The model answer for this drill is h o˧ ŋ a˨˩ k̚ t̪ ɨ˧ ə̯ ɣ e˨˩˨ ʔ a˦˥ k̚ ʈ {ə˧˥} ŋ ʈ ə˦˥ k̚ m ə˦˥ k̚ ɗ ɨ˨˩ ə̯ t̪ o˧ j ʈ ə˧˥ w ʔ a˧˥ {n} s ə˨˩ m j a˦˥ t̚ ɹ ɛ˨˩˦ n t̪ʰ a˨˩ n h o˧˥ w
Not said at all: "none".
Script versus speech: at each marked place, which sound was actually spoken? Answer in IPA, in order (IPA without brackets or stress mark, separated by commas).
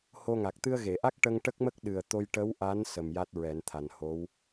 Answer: ə˧, n